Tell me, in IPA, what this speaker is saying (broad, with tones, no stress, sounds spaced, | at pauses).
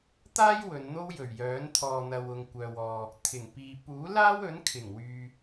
t̪ aː˥ j w ɵ˨˧ n n̪ o˥ w j ɵ˨˩ ɥ j œː˨˥ n t̪ʰ ɔː˨ n̪ ɐ˨ w ʊ˨ ŋ kʷ œː˨ w ɔː˨ | t̪ʰ ɪ˨˩ ŋ p iː˨ p uː˨˥ l aː˥ w ɵ˨˥ n kʰ ɪ˨˩ ŋ w yː˨